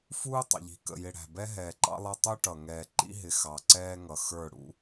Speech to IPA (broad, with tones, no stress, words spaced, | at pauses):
fuː˦tˤə̰˨ʎi̤˨ kə̰˨jɪ˨ɽæ̤˨bɛ˦ ɦɛː˨ǃɑ̰˦lˠɑ˦ tˤu˦ʈʌ˨ ŋɛː˨ǃḭ˦ɦɪ˨ xɑ˨ǀɛː˦ŋʌ˨ xə˞˦˨ ɽṵ˦